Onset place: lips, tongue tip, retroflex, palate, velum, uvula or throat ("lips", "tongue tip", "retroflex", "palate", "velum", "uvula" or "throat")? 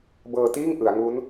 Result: lips